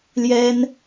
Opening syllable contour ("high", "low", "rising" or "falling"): high